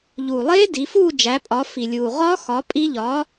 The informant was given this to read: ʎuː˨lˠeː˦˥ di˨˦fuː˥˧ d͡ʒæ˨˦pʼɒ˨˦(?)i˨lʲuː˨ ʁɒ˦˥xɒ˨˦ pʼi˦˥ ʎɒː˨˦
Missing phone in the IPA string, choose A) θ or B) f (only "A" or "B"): B